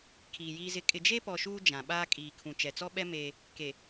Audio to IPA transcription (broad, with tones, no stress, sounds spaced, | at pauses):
kʰ iː˨ j iː˦ z ɪ˦ kʼ ɪ˨ d͡ʒ e˦ p ɔ˨ ʃ uː˦ d͡ʒ ã˨ ɓ aː˦ kʼ iː˨ kʰ ũ˨ t͡ʃ ɛ˨ t͡s ɔ˦ ɓ ɛ˦ m eː˦ | k e˨